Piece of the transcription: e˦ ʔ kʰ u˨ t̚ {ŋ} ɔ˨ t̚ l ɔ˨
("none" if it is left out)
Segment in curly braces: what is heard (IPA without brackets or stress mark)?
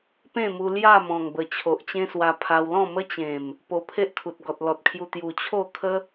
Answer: ɡ